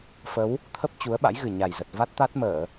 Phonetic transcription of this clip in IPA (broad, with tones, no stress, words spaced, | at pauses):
fə˨˦w | t̪ʰə˦˥p̚ t͡ɕu˨˦ə̯ɓa̰˧˥jɣɨ˨˩ ɲa˨˩jzə˨˩t̚ va˦˥t̚t̪a˦˥t̚məː˧˩˨